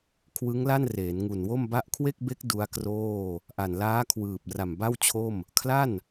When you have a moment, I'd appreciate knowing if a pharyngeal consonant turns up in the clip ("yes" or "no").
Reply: no